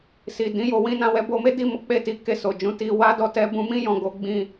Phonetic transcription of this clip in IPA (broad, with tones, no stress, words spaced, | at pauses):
si˨dĩ˨˦jo˧ wĩ˧nã˧wɛ˧ bo˧me˦di˦˨ mɔ˨˦k͡pe˦˨ti˨˦ ke˧so˨d͡ʒũ˨˦ti˧ wa˦dɔ˦˨ tɛ˧bũ˧mĩ˦ jɔ̃˧ɡo˦ ɡ͡bĩ˦˨